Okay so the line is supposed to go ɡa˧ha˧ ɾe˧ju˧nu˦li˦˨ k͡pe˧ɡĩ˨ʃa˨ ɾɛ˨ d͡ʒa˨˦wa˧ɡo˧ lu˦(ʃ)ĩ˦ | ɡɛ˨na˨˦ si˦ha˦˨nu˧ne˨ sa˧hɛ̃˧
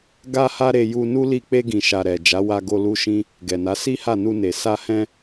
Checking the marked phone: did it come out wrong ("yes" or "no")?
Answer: no